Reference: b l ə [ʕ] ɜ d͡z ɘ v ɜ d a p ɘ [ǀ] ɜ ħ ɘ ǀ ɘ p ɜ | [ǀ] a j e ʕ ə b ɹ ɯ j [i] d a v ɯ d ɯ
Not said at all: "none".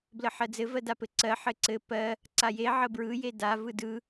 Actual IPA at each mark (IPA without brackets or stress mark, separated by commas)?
ħ, ǀ, ǀ, e